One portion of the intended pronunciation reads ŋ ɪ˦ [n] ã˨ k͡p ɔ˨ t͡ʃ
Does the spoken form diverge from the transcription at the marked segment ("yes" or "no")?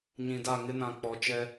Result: no